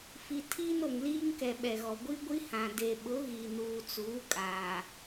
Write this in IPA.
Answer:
f i˨ tʰ iː˦ n o˨ ŋ l iː˦ ŋ k ɛ˨ ɓ ɛ˨ ɣ ɔ˨ ɡʷ i˦ ɡʷ i˦ h ã˨ d e˨ ɓ ʊ˨˦ ɣ i˨ n uː˨ t͡s uː˨˦ kʼ aː˨

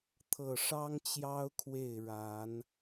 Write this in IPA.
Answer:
t̪ʰ ɤ˨˩ ʂ ɑ˦ ŋ t͡ɕ j ɑ˦ ʊ̯ kʰ w e˥˨ ɪ̯ ɻ a˨˦ n

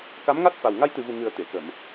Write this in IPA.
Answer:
k a˧˥ m ŋ a˦˥ t̚ f a˨˩ w ŋ a˧ j t̪ ɨ˨˩ v u˨˩ ŋ ɨ˨˩ ə̯ t̪ e˨˩˨ k ə˨˩˨ m

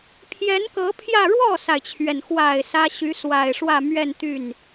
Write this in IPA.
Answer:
pʰ j ɛ˧˥ n k ɤ˧˥ pʰ j ä˥˧ ɻ w ɔ˥˩ s a˩ ɪ̯ t͡ɕʰ ɥ ɛ˩ n x w a˨˩ ɪ̯ s ä˥ ɕ y˧˥ s w a˨˩ ɪ̯ ʂ w ä˥˧ m ɥ ɛ˥˧ n t̪ y˥˩ n

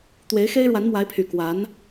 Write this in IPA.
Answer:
t̪ w e˧˥ ɪ̯ x e˥ ɪ̯ ɻ w a˧˥ n m w a˧˥ ɪ̯ pʰ y˨˩ k w a˧˥ n

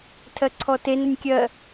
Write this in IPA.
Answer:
tʰ ɜ ǀʰ ɔ t e n ə nʲ kʲ ɜ

